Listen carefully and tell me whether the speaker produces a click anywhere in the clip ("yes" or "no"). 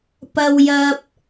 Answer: no